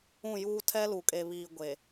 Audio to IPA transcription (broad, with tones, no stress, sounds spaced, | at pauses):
ũ˦˨ j uː˦ tʰ ɛ˦ l u˨ kʼ e˨ β iː˨ ɡʷ e˨